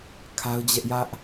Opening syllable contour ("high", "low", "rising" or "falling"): high